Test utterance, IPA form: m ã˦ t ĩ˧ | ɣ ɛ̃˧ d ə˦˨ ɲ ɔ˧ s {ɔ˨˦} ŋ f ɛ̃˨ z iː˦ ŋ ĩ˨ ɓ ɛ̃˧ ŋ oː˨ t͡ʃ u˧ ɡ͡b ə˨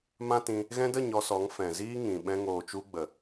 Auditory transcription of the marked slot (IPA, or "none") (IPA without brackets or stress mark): ɔ˨˦